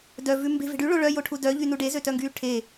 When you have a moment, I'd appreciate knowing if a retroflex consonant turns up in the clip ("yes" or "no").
yes